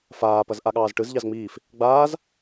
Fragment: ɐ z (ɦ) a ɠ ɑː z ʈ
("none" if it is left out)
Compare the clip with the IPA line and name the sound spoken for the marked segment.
ʔ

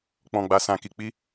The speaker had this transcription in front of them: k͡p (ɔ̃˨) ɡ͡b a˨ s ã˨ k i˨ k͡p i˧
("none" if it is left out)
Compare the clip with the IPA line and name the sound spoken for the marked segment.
ɔ̃˨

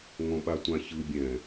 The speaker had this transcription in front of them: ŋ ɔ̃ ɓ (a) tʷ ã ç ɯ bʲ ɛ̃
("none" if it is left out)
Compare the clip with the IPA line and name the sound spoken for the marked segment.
a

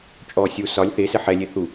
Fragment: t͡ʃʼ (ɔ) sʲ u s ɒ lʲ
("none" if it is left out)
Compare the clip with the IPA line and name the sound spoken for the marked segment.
ɔ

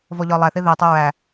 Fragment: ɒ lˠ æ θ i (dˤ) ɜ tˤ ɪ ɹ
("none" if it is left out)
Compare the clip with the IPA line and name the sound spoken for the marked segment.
ð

